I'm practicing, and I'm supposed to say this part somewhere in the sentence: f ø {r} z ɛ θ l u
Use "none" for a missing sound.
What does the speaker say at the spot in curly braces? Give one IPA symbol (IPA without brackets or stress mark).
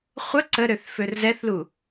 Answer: r